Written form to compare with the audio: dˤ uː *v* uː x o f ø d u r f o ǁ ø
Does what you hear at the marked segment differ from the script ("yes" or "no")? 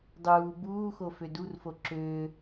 yes